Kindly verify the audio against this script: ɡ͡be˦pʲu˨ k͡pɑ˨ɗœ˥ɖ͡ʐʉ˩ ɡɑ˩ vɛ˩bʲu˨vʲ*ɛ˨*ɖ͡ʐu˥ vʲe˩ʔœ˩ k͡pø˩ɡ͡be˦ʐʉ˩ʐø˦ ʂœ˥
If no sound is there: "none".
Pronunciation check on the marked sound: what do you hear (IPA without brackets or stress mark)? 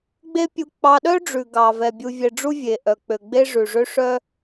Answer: ɛ˨